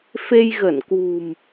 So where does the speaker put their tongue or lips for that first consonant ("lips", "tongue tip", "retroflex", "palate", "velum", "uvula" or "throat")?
lips